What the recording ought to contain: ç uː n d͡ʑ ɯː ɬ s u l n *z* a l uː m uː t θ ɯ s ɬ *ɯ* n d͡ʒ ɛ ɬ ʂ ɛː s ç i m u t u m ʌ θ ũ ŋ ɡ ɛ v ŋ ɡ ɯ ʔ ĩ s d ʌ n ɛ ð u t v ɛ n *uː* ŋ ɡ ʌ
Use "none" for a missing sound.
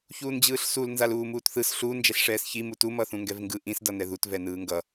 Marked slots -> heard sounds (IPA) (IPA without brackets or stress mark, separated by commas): z, u, ɯː